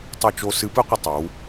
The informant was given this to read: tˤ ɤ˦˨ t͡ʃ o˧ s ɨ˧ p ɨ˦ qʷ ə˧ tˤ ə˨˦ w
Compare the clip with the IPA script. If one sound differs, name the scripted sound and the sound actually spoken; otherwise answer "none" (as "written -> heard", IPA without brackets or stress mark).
none